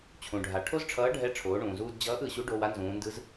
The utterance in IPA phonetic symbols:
t͡ɕʰ ũ˩ ɖʱ a˩ ʈʰ o˥ z ʈ͡ʂʰ ʌː˧˥ ɖʱ ɛ˧˥ ʈ͡ʂʰ oː˩˧ ɳ ũː˩ z uː˧ d d͡ʑ ʌː˧˥ ʔ ɯ˩˧ ɕ u˧˥ ɖ o˧ w a˥ n z ũː˩˧ n d ɯ˧˥ z

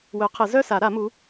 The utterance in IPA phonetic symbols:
w œ˨˩˦ qʰ ə˨˩˦ z œ˥˧ s a˨˩˦ ɾ a˨˩˦ m u˨˦

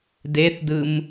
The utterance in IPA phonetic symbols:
d e θ d ɯ m

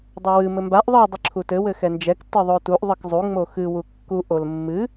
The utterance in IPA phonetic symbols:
dˤ ɘ w ɨ m ɘ m b a ʔ ðˤ ɨ dˤ ɨ ǁʰ u t ɘ w ɘ x ɛ n d͡ʒ ɛ k t ɨ ðˤ o t u ʔ ðˤ ɨ k zˤ u ŋ͡m o x ɨ w u kː u ʔ o l mː ɨ

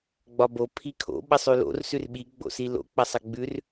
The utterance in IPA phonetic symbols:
ɡ͡b ɒ b o pʰ i kʰ o̰ ɓ ɐ sˤ ʉ l o̰ r s ʉ r ɓ i ɡ͡b o̰ s i l o̰ k͡p ɐ sˤ ɐ ɡ͡b ʉ r

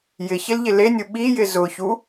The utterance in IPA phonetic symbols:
j ɪ ç ɪ l ʎ ɪ l e nʲ ʊ ɓ i j ɪ z ʊ ç u

